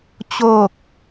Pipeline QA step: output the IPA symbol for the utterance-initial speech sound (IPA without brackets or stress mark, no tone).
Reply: t͡ɕ